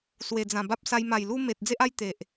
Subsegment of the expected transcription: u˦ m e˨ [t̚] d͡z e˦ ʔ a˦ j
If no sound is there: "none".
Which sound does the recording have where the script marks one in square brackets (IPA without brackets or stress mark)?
t̚